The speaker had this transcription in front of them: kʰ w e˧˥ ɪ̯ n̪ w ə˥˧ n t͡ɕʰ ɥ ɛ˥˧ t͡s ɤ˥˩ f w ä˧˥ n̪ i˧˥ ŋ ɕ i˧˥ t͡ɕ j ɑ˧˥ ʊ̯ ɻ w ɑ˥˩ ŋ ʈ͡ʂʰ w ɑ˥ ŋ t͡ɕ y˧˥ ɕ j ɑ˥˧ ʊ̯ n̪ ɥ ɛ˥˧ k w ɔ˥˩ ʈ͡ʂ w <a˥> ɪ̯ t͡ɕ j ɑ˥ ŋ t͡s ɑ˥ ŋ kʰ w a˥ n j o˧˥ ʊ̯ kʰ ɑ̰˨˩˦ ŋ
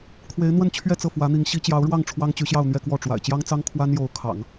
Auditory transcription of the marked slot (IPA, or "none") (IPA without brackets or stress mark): a̰˨˩